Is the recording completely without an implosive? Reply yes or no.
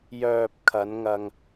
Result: yes